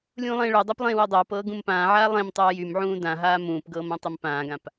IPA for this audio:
lʲũːlˠẽːɭœdˤap lˠẽːwɤdˤɤːpɤː ɡũmpãːʕaː lˠẽmtˤɤː jymʕũː dãɦaː mũːpɡɤːm ãtˤympãːɡãp

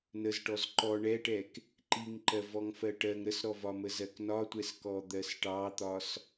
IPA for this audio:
nəzʈɔz ǃɔ ɳɛʈɛk | ǃiŋǃɜ vɔŋfɜʈɜŋ ɾəsɾɔvɒmə zɜknɒtʷɛs kɔd̪ɜsʈɑt̪ɒs

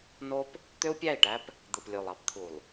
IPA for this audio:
no˦p | t̪ø˦u̯pʲæ˦˨i̯ʈæ˦p | d̪ɯ˨plʲo˨lˠɑ˦p t̪ʰu˨lˠ

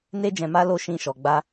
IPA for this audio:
ne˧d͡ʒɛ̃˨ma˧lo˧ ʃĩ˧ʃɔ˨ɡ͡ba˧

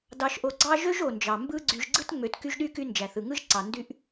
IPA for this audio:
dɑ˨ʃʔo˨ɡ͡ǀɑ˦ ʒø˥ʒ o˩nd͡ʒɑ˩ mbɯ˦ɡ͡ǀy˨ʒ ɡ͡ǀɯ˥tŋ͡mø˨t ky˦ʒɗy˥ ky˦nd͡ʒæ˩θɯ˩ŋɯ˥ʒ ǀɑ˩ ndy˦ʔ

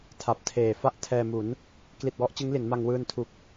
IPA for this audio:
tʰa˨˩p̚tʰeː˨˩ fa˥˩ʔtʰɛː˧mu˩˦n | kli˨˩t̚wɔ˦˥ʔ t͡ɕɯ˦˥ŋli˩˦n ma˧ŋwɯː˧ntʰu˨˩k̚

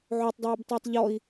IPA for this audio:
ʕotˤdˤoːbtˤʌːtˤ ʎɔi̯

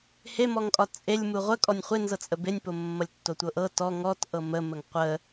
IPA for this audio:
hemɔŋkʼɒ t͡sʼelʲ muʁʷə kʼɔnʲχʷenzɤt͡sʼə benʲpomːʌlʲtːo tʷɤʔɤ tɔ ŋɔt ʔɤmə məŋqʷə

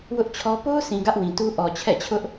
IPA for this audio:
wʊ˦ʔt͡ɕʰɔ˦ po˦ʊ̯sʰĩ˨ ɡä˦ʔwĩ˨tu˦ ʔɔ˨t͡ɕʰɛ̰˦˨t͡ɕʰʊ˦ʔ

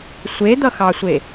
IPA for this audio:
sʷed̪ʌxɑsʷe

